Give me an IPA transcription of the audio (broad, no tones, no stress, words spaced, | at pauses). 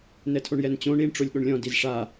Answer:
nɛtʰoɳjɛnt͡ɕõ ɳiɳ ʈ͡ʂolʲɠoɳlʲɔ̃ dizʂa